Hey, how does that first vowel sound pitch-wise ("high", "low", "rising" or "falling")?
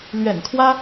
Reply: low